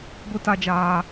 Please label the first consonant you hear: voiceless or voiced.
voiced